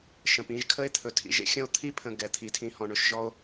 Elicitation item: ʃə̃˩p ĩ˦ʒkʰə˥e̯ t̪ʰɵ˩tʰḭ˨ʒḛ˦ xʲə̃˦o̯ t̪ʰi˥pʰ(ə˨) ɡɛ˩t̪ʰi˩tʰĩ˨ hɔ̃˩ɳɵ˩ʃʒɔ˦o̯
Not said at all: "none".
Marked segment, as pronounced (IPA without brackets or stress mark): ə̃˨